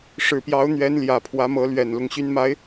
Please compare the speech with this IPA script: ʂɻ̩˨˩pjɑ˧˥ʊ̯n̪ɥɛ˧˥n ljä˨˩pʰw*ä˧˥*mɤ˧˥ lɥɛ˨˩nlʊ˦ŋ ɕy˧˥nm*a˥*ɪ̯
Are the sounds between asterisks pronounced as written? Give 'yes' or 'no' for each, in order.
yes, no

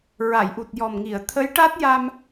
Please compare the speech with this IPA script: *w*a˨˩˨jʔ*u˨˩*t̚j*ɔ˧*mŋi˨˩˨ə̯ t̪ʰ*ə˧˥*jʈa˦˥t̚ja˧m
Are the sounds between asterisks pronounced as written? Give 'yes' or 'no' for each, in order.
no, yes, no, yes

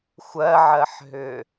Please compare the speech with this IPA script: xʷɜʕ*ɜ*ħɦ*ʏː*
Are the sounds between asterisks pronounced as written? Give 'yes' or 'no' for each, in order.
yes, yes

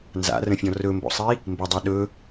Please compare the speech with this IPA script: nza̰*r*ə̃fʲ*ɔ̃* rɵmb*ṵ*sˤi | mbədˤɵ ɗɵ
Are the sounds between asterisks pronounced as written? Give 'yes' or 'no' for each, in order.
yes, yes, no

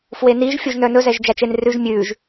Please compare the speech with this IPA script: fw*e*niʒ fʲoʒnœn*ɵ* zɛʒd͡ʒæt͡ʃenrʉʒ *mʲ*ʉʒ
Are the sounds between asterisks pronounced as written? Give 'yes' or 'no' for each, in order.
yes, yes, yes

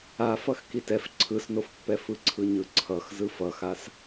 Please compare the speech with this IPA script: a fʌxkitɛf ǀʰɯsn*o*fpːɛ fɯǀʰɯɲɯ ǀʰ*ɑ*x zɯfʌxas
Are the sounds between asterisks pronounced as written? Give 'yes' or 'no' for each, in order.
yes, no

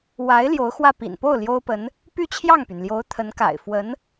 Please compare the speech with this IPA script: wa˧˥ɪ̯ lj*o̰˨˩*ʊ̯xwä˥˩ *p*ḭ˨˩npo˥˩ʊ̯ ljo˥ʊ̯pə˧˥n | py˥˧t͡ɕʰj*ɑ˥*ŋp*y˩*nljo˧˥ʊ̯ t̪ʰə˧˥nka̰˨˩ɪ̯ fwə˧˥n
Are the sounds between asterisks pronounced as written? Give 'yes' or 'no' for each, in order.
no, yes, no, yes

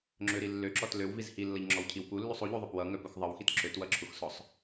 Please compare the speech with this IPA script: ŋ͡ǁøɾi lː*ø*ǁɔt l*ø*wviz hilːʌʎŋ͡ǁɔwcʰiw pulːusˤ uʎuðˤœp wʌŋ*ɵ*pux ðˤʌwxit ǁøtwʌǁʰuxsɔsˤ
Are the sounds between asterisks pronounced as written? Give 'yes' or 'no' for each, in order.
yes, yes, no

